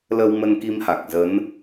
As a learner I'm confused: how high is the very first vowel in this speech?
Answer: mid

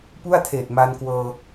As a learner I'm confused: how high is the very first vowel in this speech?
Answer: high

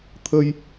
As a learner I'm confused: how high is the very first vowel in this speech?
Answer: mid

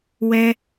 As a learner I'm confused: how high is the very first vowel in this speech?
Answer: mid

